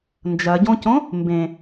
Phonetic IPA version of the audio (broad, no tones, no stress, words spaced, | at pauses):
nd͡ʒɐɟõcõ | mbẽ